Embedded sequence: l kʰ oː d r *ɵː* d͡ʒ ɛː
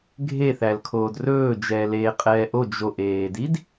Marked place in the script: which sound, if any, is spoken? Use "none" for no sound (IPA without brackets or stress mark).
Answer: ɵː